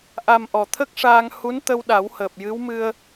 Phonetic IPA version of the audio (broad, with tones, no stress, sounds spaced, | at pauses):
ʔ a˨˩ m ʔ ɔ˨˩ t̪ʰ ə˦˥ k̚ ʂ aː˧ ŋ h u˧˥ n t̪ ə˧ w ɗ a˨˩˦ w h əː˨˩ p̚ j ɨ˧˥ w m ɨ˧ ə̯